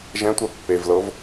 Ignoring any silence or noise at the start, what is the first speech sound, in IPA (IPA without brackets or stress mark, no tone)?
ʒ